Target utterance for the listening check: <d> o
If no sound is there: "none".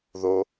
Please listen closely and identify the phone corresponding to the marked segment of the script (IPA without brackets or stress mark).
ð